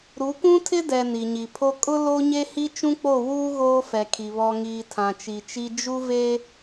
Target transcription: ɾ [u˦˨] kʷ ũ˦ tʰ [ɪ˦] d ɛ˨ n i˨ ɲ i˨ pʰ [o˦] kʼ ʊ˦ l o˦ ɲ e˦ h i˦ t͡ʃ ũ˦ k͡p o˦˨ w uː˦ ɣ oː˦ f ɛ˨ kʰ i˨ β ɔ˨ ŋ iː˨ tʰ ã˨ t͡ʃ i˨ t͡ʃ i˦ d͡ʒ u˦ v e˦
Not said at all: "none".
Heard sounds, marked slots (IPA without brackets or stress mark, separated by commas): u˨˦, ɪ˦, o˦